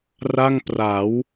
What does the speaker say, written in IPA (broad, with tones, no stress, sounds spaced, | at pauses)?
r a˥˩ ŋ p r a˩˦ w